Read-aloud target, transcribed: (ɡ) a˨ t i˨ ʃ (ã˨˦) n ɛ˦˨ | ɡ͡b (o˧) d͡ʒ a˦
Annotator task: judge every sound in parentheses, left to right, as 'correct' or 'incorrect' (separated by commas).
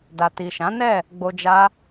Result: incorrect, correct, correct